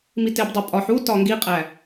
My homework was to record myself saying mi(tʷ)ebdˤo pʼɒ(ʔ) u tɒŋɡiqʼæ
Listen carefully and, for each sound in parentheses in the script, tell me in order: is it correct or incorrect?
incorrect: t, incorrect: ħ

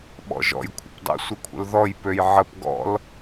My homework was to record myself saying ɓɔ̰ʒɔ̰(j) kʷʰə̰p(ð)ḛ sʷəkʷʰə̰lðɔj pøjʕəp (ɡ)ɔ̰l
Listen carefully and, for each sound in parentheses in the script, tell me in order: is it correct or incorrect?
correct, incorrect: dˤ, correct

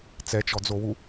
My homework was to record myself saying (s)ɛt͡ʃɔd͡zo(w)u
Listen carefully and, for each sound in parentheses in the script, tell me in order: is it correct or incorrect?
incorrect: t͡s, correct

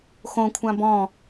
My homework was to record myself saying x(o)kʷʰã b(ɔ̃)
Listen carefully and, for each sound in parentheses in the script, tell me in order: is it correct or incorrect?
incorrect: õ, correct

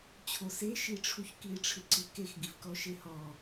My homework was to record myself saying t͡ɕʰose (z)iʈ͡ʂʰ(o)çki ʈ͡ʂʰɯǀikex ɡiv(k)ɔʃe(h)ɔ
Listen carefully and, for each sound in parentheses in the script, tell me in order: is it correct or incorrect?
incorrect: ʃ, incorrect: u, correct, correct

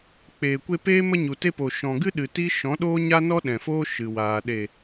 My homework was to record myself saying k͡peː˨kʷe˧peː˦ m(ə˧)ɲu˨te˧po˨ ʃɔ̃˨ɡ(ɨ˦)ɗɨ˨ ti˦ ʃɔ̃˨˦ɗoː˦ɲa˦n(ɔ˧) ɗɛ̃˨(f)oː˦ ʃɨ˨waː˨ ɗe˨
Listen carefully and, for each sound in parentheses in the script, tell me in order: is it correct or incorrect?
correct, correct, incorrect: ɔ˦, correct

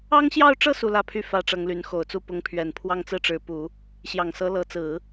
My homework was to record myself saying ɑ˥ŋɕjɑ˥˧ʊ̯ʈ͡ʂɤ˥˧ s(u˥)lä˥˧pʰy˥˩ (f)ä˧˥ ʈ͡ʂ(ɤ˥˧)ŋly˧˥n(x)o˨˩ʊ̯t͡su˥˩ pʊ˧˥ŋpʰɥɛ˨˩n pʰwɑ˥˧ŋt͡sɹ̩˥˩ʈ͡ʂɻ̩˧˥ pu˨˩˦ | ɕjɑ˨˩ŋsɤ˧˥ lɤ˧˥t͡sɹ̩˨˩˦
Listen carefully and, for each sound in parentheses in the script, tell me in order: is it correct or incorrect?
incorrect: u˥˧, correct, incorrect: ɤ˧˥, correct

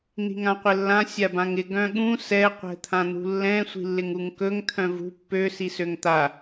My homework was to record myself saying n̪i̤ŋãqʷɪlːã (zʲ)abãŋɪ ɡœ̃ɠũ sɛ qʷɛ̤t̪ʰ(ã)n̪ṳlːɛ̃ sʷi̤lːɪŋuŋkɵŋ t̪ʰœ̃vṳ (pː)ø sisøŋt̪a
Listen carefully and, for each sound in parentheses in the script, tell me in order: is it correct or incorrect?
incorrect: sʲ, correct, correct

